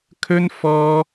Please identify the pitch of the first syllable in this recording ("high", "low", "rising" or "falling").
high